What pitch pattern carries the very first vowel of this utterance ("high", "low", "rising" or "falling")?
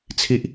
high